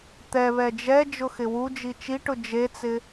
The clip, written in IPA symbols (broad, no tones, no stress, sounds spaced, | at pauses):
t̪ ɛ β ɛ d͡ʒ ɛ d͡ʒ ʊ x ɪ w u d͡ʒ i t͡ʃ i ʈ ʊ d͡ʒ e t͡s ɪ